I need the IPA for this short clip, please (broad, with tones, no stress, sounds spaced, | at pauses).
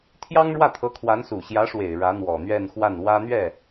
t̪ʰ j ɑ˥ ŋ ɻ w ä˥˩ t̪ʰ ɤ˧˥ kʰ w a˧˥ n s u˨˩ ɕ j ä˧˥ ʂ w e˨˩ ɪ̯ ɻ ä˧˥ n̪ w ɔ˨˩ n̪ ɥ ɛ˥˧ n x w a˥˩ n w ä˥ n̪ ɥ ɛ˥˩